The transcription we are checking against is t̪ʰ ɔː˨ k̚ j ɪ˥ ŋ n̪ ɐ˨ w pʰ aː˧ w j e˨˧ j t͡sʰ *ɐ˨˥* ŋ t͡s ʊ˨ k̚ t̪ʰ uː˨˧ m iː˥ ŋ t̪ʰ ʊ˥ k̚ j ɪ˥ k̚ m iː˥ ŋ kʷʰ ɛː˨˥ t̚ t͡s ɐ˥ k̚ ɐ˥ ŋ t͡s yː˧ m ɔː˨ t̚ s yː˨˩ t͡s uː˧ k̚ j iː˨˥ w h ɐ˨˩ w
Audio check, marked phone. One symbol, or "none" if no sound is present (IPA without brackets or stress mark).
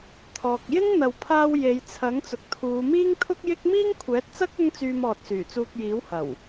ɐ˨˥